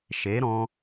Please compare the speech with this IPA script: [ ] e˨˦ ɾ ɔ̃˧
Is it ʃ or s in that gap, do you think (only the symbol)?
ʃ